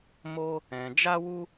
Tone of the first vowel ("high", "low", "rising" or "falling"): high